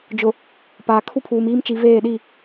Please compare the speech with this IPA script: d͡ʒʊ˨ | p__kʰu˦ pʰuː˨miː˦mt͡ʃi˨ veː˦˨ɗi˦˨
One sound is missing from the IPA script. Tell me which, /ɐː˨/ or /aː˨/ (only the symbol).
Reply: aː˨